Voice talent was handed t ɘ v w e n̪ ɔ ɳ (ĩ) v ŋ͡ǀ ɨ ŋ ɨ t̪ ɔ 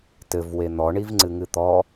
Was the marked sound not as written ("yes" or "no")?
yes